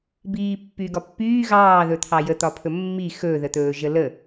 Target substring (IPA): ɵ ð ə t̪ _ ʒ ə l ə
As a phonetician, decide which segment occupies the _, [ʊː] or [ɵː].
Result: ɵː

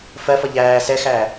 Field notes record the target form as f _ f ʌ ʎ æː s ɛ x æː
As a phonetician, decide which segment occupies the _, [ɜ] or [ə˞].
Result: ɜ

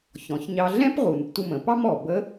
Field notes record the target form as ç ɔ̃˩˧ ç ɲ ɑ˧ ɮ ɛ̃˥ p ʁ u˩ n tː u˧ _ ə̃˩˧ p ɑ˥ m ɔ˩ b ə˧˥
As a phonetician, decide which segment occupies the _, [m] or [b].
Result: m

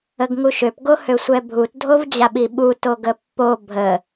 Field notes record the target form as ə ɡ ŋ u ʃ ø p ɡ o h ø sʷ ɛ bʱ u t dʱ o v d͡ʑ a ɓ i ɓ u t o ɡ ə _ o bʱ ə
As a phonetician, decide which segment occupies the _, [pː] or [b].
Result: pː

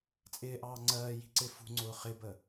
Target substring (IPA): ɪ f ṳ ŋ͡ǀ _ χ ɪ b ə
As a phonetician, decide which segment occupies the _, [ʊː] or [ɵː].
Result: ʊː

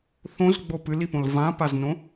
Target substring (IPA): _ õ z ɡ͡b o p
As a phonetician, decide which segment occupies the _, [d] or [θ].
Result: θ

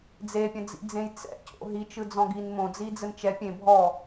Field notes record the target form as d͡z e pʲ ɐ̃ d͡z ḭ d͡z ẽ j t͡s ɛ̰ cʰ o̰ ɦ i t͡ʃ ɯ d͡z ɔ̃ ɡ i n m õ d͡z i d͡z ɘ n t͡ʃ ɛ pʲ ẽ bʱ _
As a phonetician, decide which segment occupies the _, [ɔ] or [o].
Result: ɔ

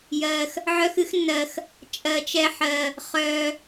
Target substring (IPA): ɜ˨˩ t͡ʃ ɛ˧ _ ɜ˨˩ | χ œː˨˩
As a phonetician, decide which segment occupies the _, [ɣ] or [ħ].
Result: ħ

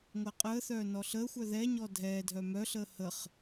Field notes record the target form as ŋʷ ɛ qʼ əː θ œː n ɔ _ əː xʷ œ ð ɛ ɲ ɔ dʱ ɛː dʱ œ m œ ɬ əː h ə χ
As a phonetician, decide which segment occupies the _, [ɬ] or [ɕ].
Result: ɬ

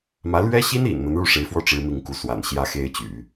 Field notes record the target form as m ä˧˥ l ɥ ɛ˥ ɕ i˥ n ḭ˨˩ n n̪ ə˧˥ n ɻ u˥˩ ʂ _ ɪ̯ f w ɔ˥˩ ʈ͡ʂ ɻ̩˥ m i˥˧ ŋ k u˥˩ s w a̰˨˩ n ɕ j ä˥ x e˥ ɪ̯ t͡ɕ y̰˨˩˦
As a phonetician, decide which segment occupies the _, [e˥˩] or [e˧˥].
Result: e˧˥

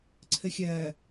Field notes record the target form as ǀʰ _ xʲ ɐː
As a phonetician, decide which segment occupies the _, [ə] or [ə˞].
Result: ə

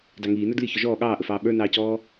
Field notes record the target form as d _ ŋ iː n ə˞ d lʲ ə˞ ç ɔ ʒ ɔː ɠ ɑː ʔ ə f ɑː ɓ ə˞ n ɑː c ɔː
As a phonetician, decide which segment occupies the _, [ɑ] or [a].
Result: ɑ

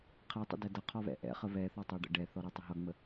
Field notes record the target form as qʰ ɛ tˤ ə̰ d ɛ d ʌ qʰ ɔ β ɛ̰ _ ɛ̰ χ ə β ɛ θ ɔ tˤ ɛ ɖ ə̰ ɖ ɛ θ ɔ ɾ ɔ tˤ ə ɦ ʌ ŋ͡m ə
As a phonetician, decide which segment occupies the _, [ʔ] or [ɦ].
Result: ʔ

